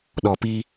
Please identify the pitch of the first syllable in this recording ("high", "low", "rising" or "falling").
low